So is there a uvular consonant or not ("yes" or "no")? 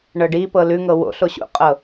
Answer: yes